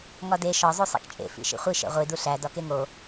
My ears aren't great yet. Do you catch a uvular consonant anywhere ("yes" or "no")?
yes